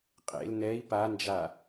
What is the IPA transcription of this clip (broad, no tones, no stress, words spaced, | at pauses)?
qʼḛl nɛi̯ pand͡ʒa